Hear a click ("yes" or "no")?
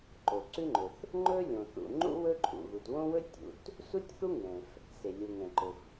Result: yes